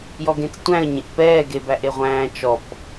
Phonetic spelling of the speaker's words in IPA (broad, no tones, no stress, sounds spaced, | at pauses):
j ɔ ɡ ẽ t͡s tʷ æ̃ ə̯ ɲ ẽ ʔ p ɛː ɡ e b æ ʔ e ʁʷ æ̃ː t͡ʃ ɔ p